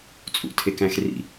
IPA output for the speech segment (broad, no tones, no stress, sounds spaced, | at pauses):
t͡sʼ ṵ tʰ e k æ̃ x r ḭ